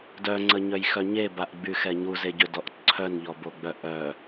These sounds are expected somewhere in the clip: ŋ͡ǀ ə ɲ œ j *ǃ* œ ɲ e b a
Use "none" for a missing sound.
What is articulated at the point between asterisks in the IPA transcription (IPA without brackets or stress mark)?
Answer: x